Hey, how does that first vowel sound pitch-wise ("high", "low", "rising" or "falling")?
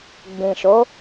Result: low